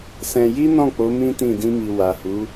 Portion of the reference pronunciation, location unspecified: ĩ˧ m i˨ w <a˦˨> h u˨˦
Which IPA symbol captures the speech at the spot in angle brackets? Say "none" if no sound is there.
a˨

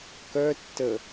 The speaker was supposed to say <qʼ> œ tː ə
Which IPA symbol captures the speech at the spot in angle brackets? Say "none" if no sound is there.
k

